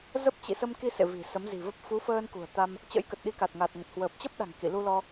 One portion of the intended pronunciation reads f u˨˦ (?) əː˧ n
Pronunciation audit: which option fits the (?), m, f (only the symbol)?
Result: f